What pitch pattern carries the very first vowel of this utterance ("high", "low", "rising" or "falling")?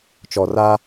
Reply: low